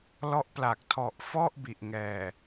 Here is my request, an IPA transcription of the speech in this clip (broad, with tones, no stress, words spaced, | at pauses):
lɔ˦˥ʔpla˨˩k̚ tʰɔ˨˩ʔ fɔ˥˩ʔbi˨˩ʔ ŋɛː˨˩